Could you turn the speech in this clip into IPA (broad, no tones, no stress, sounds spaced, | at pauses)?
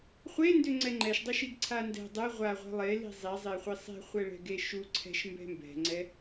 χʷ e n d ʏ ŋ͡ǀ ɛ ŋ͡ǃ ɛ ʃ dˤ ʏ ʃ i ɡ ǀʰ a n d ɛ̤ dˤ ɛ ʁʷ a ʁʷ ɛ̤ lˠ e l i̤ zˤ i zˤ e χʷ i sˤ e̤ χʷ ɛ ɭ ɛ̤ ɡ e ʃ u ǀʰ ɛ̤ ʃ m b ɛ̤ m b ɛ̤ ŋ͡ǀ ɛ